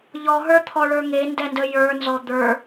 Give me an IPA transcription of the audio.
ʎ ɔ ɦ ə˞ t̪ʰ ɔ ɭ ə˞ ŋ e n d ɛ n d ə j ə˞ n z ɔ d̪ ə˞

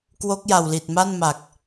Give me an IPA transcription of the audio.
k w o˦˥ k̚ j a˨˩ w l i˨˩ t̚ m a˥˩ n m a˨˩ k̚

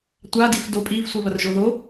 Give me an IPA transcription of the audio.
tʷ a d i f d o pʼ i v sʷ i β ɐ r ʒ o ð o

